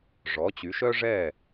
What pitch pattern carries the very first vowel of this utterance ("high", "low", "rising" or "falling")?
rising